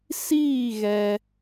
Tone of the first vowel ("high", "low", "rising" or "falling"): falling